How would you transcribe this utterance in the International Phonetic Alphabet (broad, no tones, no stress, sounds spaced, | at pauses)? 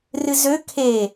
r ɨ z ø kʰ e